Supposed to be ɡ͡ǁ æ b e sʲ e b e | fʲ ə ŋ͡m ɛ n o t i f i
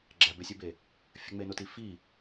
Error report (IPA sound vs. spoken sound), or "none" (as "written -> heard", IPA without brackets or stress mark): ɛ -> e